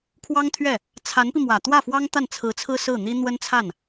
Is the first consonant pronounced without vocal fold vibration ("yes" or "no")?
yes